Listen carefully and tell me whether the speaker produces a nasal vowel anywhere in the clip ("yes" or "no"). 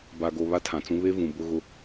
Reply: yes